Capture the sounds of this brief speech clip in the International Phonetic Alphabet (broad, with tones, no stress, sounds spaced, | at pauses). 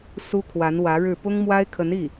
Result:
s u˥ kʰ w a˧˥ n w ä˧˥ ɻ ɻ̩˥˩ p ʊ˥ ŋ m w a˥ ɪ̯ kʰ ə˧˥ n i˥˩